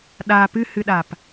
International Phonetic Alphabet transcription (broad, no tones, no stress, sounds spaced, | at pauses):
ɗ a p ɨ h ɨ ɗ a p